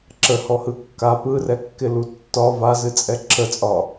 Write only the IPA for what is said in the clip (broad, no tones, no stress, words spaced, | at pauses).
ǁəhɔhɯ kːa pɯrɛkːɪlu tːɒ vazɨt͡sʼɛ ǁʰət͡sʼɒ